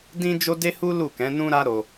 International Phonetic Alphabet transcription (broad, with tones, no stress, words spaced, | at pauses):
dĩ˦ d͡ʒo˦de˦hu˦ lu˦˨kɛ̃˨˦nũ˦ɾa˦ ɾo˧